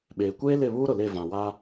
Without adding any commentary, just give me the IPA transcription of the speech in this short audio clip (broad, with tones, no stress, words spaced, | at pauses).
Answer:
ɓeː˨kʷeː˦lɪ˦˨ βuː˦ɾʊ˨le˦˨ vã˨wa˦